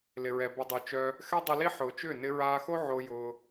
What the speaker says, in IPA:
l ɪ˨ ɹ ɛ˨ b ə˨ dˤ o˨ t͡ʃ œ˧ | x ɛ˦ dˤ ʊ˧ l i˦ ħ ʊː˨ t͡ʃ ʏː˦˨ n ɪ˧ ɹ aː˧ x o˦ ʕ o˧ j ʊː˧

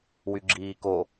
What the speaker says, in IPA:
w y ɡ͡ǁ iː k o

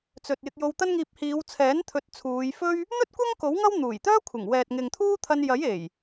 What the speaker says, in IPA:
t͡s ɵ˨ t̚ j ɪ˧ k̚ j o˧ w t̪ ɐ˥ n ŋ iː˧ p̚ h iː˨˧ w t͡sʰ ɛː˨˥ n t̪ʰ ɵ˨˥ t̚ t͡sʰ uː˨˧ j f ɵ˥ ɥ | n̪ ɵ˥ t̚ kʷ ɐ˥ ŋ k o˨˥ w ŋ ɐ˥ w n̪ uː˨˩ j t̪ œː˥ kʷʰ ɪ˨˩ ŋ w ɛː˨ t̚ ŋ ɪ˨ ŋ t̪ʰ uː˥ t̪ʰ ɐ˧ n j ɐ˨˥ j e˨˩ j

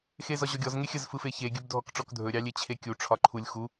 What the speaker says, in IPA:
x e z ɒ ʑ ɔ ɡʲ ɔ z ŋ e xʲ ə z f ɯ f e ç e ɡʲ ɵ b dʱ ɔ k ʈ͡ʂ ɔ k dʱ ɵ ɾʲ ɑ lʲ e t͡ɕʰ e kʲ u ʈ͡ʂʰ ɒ ǃʰ u lʲ x u

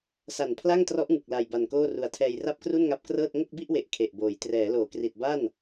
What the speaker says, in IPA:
s a˨˩ n pʰ l a˥˩ ŋ t r ɔ˦˥ ʔ ŋ ɯ˨˩ k̚ l a˨˩ j b a˨˩ n k oː˥˩ r u˨˩ a̯ tʰ ɛː˧ j r a˥˩ p̚ k r u˥˩ n ŋ a˦˥ p̚ k r ɤː˥˩ t̚ ŋ o˥˩ k̚ b i˥˩ ʔ w e˨˩ ʔ kʰ e˨˩ ʔ b oː˩˦ j t r ɛː˩˦ l oː˩˦ k r i˨˩ t̚ b a˥˩ n

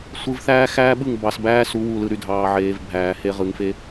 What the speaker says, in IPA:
sʷ ɯ˨ v θ æː˦ x æː˦ ɓ ɯ˦˨ ŋ b ɑ˨ s b æː˦ s u˨˦ w u˨ l ɯ˨ ɾ y˨ dʱ ɑː˨ ʕ eː˨ v bʱ æː˨ h e˦ ʁ ɯ˨ ŋ f e˦

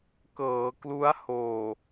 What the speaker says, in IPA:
k ɤː˩˦ k l u˦˥ a̯ h oː˨˩

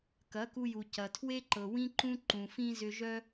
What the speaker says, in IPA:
k ɐ˨˦ k u˧ j u˨ c ɐ˨ tʰ w e˦ ǃ ɤ˨ w ĩ˦ ǃ ũ˦ ǃ ũ˨ f ĩ˦ z ʏ˧ ʒ œ˦

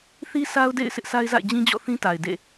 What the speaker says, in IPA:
θ i˦ s a˦ ʊ̯ d ḛ˦˨ ɪ̯ s ɪ˦ ʔ s a˦ ɪ̯ z a̰˦˨ ɪ̯ d͡ʑ ĩ˦ d͡ʑ ɔ̰˦˨ θ ĩ˦ t a˨ ɪ̯ d ḛ˦˨

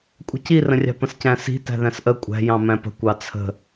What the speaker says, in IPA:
kʷʼ ə̤ c i r ə̃ rʲ ɑ̤ p ə̃ s c æ̃ s i̤ t æ̤ ð æ̃ s ʔ ə kʷʼ æ̤ j ɑ̃ m æ̃ p ə̤ kʷ ɑ t͡sʰ ə̤

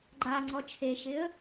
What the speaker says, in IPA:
ɡ͡ǃ a ŋ͡ǀ ɔ t͡ʃʰ e ʃ ɪ ə̯

